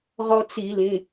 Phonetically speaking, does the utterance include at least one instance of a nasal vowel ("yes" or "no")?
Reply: yes